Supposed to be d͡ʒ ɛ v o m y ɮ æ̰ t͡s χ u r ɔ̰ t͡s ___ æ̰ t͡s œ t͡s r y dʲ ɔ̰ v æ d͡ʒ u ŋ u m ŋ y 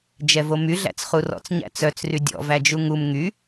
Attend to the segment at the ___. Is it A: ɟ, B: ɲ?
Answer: B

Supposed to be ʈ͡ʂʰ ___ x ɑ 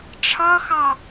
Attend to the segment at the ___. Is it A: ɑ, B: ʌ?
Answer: B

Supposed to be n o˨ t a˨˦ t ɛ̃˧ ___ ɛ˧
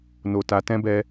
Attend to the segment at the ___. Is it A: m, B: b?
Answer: B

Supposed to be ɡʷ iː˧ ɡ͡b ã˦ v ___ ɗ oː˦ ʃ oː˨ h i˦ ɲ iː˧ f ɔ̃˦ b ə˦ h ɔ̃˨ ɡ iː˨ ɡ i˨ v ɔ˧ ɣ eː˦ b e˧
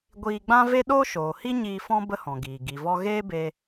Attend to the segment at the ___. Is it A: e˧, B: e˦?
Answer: B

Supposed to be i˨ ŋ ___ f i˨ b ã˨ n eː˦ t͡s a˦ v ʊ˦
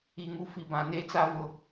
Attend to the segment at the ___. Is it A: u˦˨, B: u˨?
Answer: A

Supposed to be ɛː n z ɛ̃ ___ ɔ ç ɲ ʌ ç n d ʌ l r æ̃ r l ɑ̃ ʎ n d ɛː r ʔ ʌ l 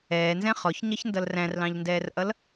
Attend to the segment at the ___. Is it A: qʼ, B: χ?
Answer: B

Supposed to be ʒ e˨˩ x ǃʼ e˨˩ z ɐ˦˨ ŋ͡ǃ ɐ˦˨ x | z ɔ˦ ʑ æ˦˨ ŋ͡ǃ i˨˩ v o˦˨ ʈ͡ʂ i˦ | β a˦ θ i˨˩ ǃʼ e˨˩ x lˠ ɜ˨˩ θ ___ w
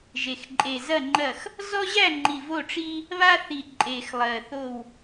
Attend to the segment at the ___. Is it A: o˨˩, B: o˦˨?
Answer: B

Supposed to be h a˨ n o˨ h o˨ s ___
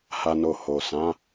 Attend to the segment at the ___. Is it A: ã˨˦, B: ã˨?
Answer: A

